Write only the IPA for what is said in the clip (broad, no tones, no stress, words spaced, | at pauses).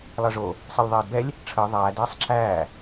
lˠəːʐo | sˤelʲðˤɛːdbɛlʲ | ʈ͡ʂʰəː ðˤæːd ɛːsˤǁʰæː